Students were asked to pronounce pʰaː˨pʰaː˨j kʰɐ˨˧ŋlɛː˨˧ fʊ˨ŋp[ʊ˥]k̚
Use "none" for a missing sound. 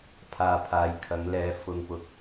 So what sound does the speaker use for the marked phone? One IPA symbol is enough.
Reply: ʊ˨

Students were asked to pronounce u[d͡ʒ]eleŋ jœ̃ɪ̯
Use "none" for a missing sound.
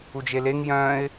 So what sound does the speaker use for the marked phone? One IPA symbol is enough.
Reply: d͡ʒ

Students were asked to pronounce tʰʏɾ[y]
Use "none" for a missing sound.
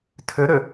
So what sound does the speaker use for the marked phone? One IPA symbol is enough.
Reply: ʏ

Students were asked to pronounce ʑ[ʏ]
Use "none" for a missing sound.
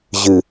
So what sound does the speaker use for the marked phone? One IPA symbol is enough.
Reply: ɨ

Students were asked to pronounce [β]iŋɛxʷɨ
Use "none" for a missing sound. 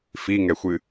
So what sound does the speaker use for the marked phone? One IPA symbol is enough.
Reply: f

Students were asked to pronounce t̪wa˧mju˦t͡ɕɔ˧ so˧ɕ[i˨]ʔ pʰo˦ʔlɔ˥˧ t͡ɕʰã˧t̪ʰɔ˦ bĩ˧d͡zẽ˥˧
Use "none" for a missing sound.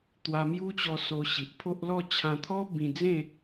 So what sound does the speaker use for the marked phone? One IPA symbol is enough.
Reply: i˨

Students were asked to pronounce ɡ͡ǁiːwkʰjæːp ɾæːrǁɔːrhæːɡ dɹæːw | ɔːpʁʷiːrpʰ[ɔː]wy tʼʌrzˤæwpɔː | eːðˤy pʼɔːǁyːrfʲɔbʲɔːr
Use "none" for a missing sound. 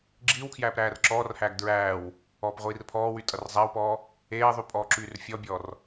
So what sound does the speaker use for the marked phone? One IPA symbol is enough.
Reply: ɔː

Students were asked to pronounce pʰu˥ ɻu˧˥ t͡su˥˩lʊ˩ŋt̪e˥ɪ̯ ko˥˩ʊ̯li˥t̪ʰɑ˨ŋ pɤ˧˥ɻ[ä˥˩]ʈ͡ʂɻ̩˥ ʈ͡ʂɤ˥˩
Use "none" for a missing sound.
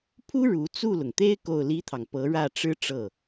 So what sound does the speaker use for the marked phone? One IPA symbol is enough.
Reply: ä˥˩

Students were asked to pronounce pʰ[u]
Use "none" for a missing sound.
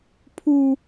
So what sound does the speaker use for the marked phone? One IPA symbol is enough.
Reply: u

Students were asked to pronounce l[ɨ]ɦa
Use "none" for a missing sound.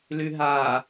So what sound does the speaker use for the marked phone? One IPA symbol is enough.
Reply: ʉ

